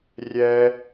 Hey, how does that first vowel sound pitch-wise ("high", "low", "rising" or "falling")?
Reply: high